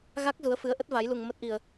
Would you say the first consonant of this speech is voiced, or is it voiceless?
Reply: voiced